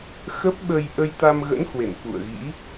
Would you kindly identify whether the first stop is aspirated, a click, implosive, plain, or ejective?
plain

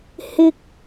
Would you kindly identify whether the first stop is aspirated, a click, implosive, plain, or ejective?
plain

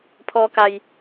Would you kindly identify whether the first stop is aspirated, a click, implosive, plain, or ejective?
aspirated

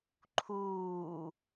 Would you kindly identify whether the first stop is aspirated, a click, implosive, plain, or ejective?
click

